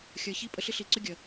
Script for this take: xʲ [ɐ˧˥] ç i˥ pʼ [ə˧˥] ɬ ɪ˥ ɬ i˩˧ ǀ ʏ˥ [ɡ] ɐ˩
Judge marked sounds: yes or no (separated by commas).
yes, no, no